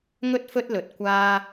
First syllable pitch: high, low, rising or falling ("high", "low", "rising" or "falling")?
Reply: high